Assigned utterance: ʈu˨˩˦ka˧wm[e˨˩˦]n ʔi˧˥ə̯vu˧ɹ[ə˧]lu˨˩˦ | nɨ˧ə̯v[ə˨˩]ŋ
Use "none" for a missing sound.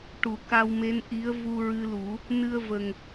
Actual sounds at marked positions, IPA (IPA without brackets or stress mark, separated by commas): e˧˥, ɨ˧, ə˨˩